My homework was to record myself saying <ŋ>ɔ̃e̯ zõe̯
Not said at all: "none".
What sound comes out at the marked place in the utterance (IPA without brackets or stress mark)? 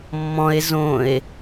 mː